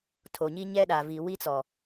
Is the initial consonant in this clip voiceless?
yes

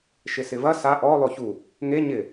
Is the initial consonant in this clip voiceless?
yes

